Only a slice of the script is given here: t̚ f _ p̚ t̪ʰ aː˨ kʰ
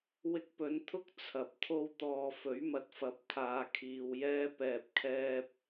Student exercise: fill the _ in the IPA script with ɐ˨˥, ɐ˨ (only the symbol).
ɐ˨˥